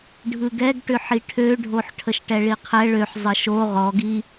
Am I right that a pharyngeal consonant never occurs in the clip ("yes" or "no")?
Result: no